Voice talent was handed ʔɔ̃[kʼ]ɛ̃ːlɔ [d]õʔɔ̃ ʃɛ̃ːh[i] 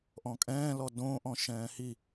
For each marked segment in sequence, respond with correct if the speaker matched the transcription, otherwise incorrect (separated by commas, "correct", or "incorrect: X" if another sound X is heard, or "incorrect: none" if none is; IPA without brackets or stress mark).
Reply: correct, correct, correct